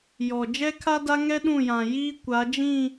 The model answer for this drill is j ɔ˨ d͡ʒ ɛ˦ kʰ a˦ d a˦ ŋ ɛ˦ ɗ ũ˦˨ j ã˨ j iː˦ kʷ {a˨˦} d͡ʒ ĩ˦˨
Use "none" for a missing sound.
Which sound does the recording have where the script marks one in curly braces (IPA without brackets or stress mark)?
a˨˦